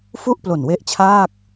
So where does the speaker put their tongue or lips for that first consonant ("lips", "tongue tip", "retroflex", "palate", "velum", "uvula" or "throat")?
lips